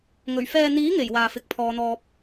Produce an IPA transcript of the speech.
ŋ ɵ˨˩ ɥ f ɛː˨ n̪ iː˨˥ ŋ e˨˩ j w aː˨ f ɪ˨˥ k̚ pʰ ɔː˨˧ n̪ ɔː˧ p̚

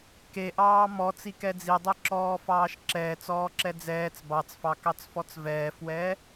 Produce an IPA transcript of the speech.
k e ʔ ɑː m ɔ t͡s i k ɛ d͡z i dˤ e ǁ ɔː f ɑː ʃ ǁ ɛː t͡s ɔː ǁ ɛ d͡z ɛː t͡s b ɑ t͡s f ɑ k ɑ t͡s f ɔ t͡s v ɛː f w ɛː

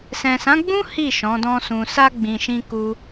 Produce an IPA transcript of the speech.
s ɛ̃˨ s ã˨˦ ɡ͡b ũ˦ h i˦˨ ʃ ɔ̃˨˦ d ɔ̃˦ s ũ˧ s a˧ ɡ͡b ĩ˨ ʃ ĩ˧ k u˦

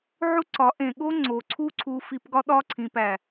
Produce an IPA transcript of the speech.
ʕ u˦ ǀ ɒ˨˦ ʔ ẽ˨ ɠ o˦ ŋ͡ǀ o˨ ǀʰ u˦ ǀʰ u˧ f i˧ p ɡ ɒ˦ ɗ ɒ˦ ǀʰ ĩ˨ p æ˨

